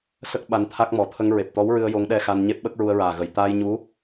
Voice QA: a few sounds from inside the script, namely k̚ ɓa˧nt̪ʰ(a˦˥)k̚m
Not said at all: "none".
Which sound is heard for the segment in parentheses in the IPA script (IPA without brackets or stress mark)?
a˦˥